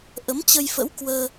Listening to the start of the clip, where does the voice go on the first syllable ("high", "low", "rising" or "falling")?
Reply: rising